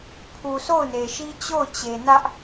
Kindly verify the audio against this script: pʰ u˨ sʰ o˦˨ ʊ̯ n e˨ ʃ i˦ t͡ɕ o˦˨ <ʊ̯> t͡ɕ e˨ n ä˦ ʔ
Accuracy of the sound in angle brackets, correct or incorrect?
correct